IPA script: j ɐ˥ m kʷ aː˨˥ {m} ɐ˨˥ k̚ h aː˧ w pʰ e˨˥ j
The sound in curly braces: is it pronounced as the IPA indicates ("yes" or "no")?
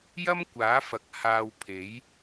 no